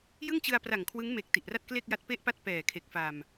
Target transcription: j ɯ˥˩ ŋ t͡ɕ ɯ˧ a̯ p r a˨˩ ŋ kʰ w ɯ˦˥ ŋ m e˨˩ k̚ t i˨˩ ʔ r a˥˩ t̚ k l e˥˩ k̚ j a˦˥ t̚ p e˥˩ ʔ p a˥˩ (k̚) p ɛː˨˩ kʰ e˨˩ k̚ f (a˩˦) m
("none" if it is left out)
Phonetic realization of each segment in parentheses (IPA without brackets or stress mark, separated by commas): t̚, a˨˩